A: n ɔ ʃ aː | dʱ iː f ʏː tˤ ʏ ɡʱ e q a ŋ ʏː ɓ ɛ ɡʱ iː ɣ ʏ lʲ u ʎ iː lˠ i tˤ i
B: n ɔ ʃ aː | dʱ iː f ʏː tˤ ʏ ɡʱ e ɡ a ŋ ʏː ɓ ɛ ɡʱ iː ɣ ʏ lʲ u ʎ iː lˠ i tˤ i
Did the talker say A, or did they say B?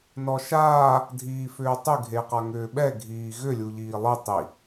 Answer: A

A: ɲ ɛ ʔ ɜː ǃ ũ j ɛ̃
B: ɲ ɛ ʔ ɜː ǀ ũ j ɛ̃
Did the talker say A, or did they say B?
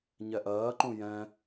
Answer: A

